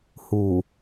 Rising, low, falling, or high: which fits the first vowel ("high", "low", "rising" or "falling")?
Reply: low